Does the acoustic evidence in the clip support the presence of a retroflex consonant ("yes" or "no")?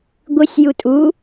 no